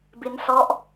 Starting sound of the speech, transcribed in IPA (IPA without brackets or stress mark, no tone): b